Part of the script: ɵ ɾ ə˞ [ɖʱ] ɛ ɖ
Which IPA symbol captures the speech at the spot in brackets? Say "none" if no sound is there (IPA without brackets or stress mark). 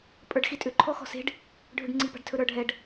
ɖʱ